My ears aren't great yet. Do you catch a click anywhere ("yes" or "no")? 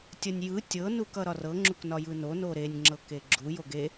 yes